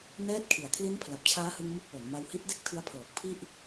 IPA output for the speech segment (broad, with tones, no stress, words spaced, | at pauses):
nɛː˦˥t̚kʰi˩˦a̯ kʰli˦˥npʰla˨˩p̚t͡ɕʰaː˦˥hɯ˧ŋ mu˥˩k̚wo˩˦n ma˧whi˦˥t̚de˥˩k̚ tʰɯ˦˥a̯pʰɤː˨˩k̚pʰi˥˩ʔ